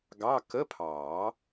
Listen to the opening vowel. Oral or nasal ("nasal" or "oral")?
oral